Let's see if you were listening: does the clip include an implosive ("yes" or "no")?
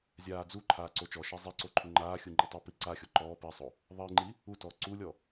no